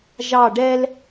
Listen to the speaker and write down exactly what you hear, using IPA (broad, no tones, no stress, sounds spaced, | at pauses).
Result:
ʒ ɑ ɖ ɛ l